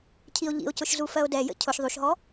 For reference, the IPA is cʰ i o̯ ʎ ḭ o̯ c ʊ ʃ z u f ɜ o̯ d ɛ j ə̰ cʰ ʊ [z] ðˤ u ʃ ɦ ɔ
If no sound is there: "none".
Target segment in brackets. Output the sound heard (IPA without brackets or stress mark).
ʃ